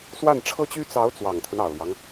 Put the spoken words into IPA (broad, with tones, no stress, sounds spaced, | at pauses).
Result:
s w a˥˩ n ʈ͡ʂʰ ɤ˥ t͡ɕ y˥ t͡s ɑ˧˥ ʊ̯ t͡s w ɑ˨˩ ŋ t̪ʰ ə˦ n ɑ˨˩ ʊ̯ l j ɑ˦ ŋ